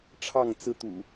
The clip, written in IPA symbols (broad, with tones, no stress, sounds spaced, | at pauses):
ʈ͡ʂʰ ɑ˥˨ ŋ t͡s ɹ̩˦ t̪ ṵ˨˩